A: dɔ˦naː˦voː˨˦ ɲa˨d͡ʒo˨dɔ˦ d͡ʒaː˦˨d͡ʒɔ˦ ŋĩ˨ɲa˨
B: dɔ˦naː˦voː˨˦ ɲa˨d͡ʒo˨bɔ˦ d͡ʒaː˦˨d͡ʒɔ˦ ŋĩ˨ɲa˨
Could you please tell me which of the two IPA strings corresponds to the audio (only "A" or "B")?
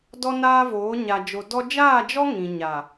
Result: A